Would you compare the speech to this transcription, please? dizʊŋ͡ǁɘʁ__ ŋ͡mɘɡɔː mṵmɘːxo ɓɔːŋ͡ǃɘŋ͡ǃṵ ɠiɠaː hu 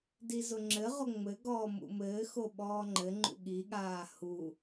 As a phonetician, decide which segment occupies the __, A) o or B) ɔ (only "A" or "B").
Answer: A